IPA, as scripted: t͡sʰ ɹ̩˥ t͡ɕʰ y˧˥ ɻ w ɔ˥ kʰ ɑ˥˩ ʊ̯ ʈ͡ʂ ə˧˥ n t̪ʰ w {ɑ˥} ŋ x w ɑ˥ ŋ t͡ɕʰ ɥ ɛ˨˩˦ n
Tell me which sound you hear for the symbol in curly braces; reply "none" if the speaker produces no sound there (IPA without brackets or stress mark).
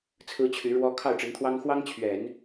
ɑ˥